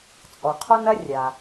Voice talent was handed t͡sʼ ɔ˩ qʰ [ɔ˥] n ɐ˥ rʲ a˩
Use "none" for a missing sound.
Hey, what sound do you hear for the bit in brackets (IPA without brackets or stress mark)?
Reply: ɔ˥